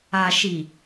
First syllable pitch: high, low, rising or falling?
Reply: low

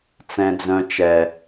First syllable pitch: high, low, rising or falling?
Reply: high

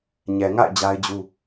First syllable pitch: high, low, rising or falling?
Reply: low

